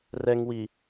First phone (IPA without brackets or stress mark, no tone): r